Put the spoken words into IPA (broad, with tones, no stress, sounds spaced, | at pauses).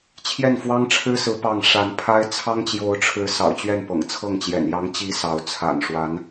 t͡ɕʰ j ɛ˥˩ n f w ɑ˥ ŋ ʈ͡ʂʰ ɻ̩˥ s ɹ̩˧˥ p ɑ˥˩ ŋ ʂ a˧˥ n pʰ a˥ ɪ̯ t͡sʰ ɑ˥ ŋ t͡ɕ j o˧˥ ʊ̯ ʈ͡ʂʰ ɻ̩˧˥ s ɑ̰˨˩ ʊ̯ t͡ɕ ɥ ɛ˥˩ n p ɤ̰˨˩ ŋ t͡sʰ ɤ˥˩ ŋ t͡ɕ j ɛ̰˨˩ n j ɑ˧˥ ŋ t͡ɕ i˧˥ s ɑ˧˥ ʊ̯ t͡sʰ a̰˨˩ n ʂ w a˧˥ n